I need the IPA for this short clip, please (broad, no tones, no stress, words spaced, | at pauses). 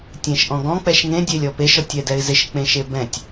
tʲẽʃʔɔ̃ɡɔ̃ k͡pɛʃŋẽ dʲelʲɔpeʃ ɔtʲɛdɛɪ̯zɪʃ k͡pẽʃebɛ̃tʲ